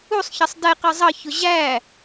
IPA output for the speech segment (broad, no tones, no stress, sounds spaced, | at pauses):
u sˤ ç ʌ sˤ d ɛ q ɜ zˤ ʌ ç ʊ ʑ æ